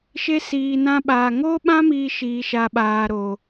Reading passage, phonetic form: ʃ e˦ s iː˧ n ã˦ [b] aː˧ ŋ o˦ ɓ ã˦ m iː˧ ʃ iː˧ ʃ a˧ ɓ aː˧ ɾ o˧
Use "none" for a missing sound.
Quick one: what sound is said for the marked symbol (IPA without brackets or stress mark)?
ɓ